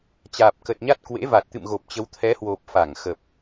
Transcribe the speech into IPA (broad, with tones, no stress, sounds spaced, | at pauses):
t͡ɕ aː˨˩ p̚ k ə˨˩ t̚ ɲ a˦˥ t̚ k w ḛ˧˥ v a˨˩ t̚ t̪ ɨ̰˧˨ m ɣ o˨˩ p̚ t͡ɕ ə˨˦ w t̪ʰ ɛ˨˦ h w o˨˩ p̚ f a˧˩ ŋ x ə˨˩ p̚